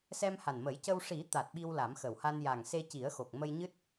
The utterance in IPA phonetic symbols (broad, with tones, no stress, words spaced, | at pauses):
sɛ˧mha˨˩nmə˨˩˦jcə˧w ʂi˨˩˦ t̪a˨˩t̚ ɓi˧wla˨˩˦m xə˨˩wha˧n ja˨˩ŋse˧ci˨˩˦ə̯xo˨˩k̚ mə˧jɲɨ˦˥t̚